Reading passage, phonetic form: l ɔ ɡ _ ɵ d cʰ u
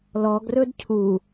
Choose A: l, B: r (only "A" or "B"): B